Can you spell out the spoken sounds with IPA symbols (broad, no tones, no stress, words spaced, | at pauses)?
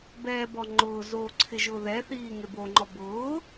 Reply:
bɛːbɔ ŋ͡ǃʊːzoː ǀʰɪʒʊːðɛθiː ŋeboŋ͡ǃɔ bʊː